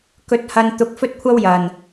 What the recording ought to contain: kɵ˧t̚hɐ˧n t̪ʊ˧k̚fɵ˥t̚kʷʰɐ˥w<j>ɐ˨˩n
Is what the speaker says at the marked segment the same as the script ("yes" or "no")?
yes